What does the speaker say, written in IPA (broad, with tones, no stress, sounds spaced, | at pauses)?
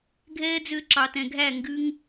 ɡʱ ɛː˧ d͡z ø˦ ǁ ɑ˨ t ɛ̃˨ ɡʱ æ˦˨ ŋ ɡ ʉ˧ ŋ